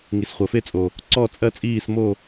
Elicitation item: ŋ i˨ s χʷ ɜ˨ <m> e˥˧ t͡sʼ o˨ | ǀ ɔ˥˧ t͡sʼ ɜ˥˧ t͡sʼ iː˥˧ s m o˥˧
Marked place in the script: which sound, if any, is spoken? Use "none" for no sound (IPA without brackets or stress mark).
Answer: f